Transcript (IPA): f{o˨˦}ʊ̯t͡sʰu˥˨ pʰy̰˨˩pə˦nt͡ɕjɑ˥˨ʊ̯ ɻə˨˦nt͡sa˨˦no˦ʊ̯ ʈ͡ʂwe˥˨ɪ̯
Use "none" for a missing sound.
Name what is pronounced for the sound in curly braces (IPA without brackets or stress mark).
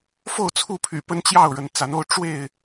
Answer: o˥˨